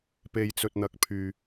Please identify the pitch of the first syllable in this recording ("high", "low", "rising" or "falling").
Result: low